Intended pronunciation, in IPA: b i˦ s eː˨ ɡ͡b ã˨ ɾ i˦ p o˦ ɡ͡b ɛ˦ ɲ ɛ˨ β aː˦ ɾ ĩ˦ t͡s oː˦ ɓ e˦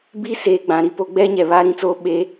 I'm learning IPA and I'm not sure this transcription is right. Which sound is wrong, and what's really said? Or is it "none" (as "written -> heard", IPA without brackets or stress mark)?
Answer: none